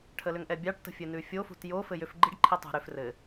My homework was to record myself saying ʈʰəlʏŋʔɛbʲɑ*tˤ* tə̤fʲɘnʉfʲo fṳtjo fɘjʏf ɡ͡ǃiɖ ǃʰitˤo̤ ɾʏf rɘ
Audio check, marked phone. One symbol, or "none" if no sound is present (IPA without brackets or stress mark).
ʈ